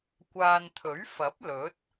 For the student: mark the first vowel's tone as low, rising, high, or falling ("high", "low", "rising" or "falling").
low